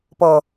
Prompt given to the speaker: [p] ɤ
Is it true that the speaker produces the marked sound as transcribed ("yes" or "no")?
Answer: yes